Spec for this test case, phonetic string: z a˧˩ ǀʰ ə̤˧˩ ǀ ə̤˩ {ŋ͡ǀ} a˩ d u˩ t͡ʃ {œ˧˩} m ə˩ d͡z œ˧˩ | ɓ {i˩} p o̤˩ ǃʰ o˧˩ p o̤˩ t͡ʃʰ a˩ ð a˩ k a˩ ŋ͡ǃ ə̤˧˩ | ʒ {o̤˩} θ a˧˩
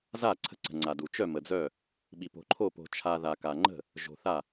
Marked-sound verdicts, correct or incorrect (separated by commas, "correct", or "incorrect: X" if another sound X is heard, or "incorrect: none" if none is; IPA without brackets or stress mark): correct, correct, correct, correct